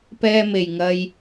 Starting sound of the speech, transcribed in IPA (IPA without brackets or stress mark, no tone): p